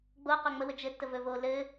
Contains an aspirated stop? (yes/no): no